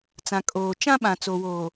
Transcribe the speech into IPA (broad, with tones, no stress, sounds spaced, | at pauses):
t͡s ã˨ kʼ oː˨ t͡ʃ ã˦ ɓ ã˨ t͡s o˨ w oː˨